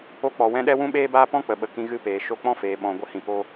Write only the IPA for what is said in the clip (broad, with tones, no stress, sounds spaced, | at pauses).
o˧ k͡p ɔ˨ w ɛ̃˧ ɗ ɛ˦ w ũ˦ ɓ eː˦ b aː˦ p ɔ̃˦ k͡p ə˨ ɓ ə˨ k ĩ˧ ɣ ɨ˧ p eː˨ ʃ o˧ k͡p ɔ̃˦ f eː˨ ɓ ɔ̃˨ ɡʷ ə˧ h ĩ˨ p o˧